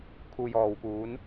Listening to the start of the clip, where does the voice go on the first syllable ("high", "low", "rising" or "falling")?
low